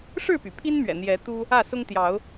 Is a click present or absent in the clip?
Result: absent